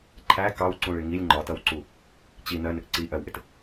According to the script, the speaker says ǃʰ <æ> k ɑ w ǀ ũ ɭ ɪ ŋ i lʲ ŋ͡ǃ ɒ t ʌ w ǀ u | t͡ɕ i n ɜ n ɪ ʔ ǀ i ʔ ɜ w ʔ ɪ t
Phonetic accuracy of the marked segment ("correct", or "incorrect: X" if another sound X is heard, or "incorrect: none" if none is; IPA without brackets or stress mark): correct